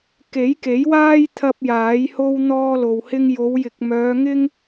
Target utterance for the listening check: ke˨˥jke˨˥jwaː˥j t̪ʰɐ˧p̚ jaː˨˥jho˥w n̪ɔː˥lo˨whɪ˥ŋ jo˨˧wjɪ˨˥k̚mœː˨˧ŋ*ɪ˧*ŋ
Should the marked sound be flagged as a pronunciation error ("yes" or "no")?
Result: yes